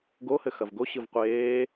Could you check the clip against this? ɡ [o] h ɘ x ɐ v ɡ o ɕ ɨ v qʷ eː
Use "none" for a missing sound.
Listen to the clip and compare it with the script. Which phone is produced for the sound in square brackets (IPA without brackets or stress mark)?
o